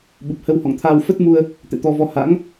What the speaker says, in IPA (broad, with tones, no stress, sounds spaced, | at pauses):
ɓ u˨˩ p̚ h ə˧ w h ɔ̰˧˨ ŋ t̪ʰ aː˧ w f ə˦˥ t̚ m u˧ ə̯ | t̪ ɛ̰˧˨ t̪ ɔ˧ v ɔ˧ h a̰˧˥ ŋ